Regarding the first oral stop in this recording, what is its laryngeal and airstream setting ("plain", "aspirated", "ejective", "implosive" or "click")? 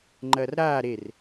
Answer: click